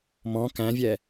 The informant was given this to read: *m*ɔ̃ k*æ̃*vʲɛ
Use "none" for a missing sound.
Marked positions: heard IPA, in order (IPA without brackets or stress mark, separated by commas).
m, æ̃